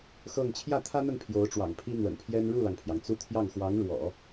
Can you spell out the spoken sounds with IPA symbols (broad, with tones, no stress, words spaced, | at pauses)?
xɤ˥˧ŋ t͡ɕʰjä˥˩t̪ʰä˥n̪ə˥˩n pʰjo˧˥ʊ̯ʈ͡ʂwɑ̰˨˩ŋpʰi˥ n̪wə̰˨˩npʰjɛ˥n ɻu˥˩lɑ˩ŋpʰjɑ˩ŋ t͡su˥ t̪ʰjɑ˥˩ŋ xwɑ˧˥ŋɻwɔ̰˨˩˦